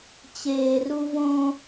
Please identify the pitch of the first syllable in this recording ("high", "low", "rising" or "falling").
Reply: low